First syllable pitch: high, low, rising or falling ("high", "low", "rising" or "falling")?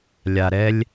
low